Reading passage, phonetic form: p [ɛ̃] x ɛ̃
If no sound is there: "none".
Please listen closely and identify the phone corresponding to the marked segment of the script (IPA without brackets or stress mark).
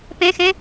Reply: ɛ̃